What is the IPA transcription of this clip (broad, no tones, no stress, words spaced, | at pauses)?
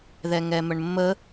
ðɛŋɛməɳmːə